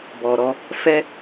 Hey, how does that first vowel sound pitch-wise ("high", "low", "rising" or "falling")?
low